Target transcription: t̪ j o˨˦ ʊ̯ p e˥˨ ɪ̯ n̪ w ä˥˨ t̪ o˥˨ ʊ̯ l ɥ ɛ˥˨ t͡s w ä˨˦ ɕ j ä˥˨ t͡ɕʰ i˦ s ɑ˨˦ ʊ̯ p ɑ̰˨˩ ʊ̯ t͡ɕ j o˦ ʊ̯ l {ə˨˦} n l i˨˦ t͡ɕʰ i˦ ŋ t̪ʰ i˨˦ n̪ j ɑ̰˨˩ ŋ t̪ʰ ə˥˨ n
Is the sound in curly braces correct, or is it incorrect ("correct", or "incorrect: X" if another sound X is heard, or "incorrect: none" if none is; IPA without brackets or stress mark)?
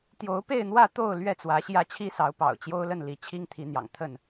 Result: incorrect: ə˥˨